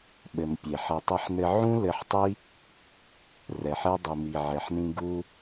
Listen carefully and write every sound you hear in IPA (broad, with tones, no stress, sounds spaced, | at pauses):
ɓ ɘ˨ m pʲ e˨ ħ ɛ˨ tˤ ɛ˧ ħ n ɘ˧ ʕ ũ˦ l ɘ˧ ħ tˤ i˦ | r ɛ˨ ħ ɛ˧ dˤ i˨ m i˨ ʕ ɛ˨ ħ n ĩ˧ ɡ u˦